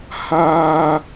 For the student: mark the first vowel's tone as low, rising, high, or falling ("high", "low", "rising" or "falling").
high